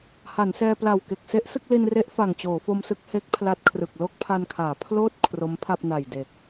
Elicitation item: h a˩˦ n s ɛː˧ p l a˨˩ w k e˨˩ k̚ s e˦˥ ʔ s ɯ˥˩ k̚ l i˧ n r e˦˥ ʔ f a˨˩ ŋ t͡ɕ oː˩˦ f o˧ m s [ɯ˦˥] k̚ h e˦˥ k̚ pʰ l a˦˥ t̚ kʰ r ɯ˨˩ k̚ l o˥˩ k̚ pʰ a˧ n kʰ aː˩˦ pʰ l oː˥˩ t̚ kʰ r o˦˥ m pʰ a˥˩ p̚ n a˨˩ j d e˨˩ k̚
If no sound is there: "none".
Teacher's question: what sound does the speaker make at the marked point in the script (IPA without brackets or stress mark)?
ɯ˦˥